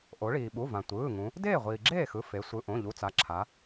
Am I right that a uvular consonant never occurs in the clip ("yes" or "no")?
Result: no